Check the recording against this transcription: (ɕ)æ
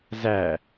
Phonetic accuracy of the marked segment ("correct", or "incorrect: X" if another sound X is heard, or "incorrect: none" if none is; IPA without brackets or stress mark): incorrect: z